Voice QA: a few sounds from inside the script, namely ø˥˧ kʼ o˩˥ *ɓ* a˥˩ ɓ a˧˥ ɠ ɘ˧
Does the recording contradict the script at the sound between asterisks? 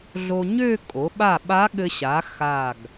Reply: no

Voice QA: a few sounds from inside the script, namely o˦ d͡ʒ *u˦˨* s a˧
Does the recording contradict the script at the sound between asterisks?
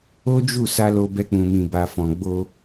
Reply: no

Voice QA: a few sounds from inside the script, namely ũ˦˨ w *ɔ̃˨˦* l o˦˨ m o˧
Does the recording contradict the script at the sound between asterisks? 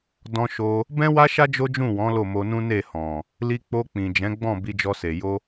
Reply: no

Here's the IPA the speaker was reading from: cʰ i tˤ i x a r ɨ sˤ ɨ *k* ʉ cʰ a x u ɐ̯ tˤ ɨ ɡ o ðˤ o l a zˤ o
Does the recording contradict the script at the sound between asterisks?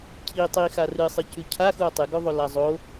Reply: yes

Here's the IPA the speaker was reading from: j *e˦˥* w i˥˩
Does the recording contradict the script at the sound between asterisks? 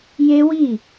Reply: no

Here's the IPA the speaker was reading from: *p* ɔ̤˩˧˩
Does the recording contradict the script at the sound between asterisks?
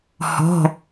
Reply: yes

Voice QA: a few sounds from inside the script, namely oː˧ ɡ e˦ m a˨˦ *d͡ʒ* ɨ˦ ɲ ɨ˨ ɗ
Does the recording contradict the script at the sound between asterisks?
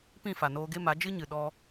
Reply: no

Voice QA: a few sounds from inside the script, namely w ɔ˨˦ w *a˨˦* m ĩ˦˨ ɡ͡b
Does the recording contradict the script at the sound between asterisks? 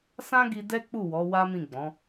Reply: yes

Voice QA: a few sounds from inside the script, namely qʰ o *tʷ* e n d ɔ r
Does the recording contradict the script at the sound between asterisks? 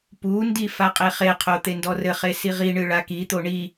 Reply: yes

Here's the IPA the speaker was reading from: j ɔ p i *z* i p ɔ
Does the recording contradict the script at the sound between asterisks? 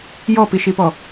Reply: yes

